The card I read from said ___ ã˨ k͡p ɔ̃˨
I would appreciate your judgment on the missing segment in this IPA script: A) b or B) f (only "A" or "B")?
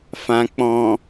B